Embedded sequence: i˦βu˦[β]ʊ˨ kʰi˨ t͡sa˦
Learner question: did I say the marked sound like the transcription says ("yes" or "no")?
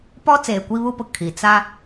no